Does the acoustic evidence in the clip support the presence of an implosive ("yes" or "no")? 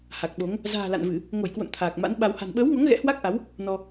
yes